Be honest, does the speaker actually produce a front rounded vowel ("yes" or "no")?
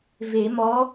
no